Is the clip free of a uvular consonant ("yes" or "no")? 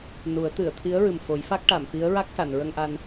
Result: yes